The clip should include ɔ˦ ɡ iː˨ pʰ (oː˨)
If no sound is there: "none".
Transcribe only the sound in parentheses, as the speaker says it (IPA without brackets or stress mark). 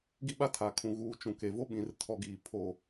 oː˦